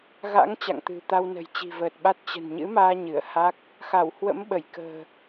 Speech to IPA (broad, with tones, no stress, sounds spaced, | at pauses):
ɣ a̰˧˥ ŋ t͡ɕ a̰˧˨ ŋ t̪ ɨ̤˨˩ t̪ a˧ w n ə̤˨˩ j t͡ɕ i̤˨˩ v əː˨˩ t̚ ɓ a˦˥ t̚ t͡ɕ ə̤˨˩ n ɲ ɨ̰˧˥ m aː˧ ɲ ɨ˧˩ ə̯ h a˦˥ k̚ | x a˧˩ w h w ə̰˧˥ m ɓ ə˧˩ j k ə̤ː˨˩